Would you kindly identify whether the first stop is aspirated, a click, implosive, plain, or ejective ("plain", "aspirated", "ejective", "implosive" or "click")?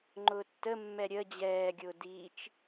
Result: click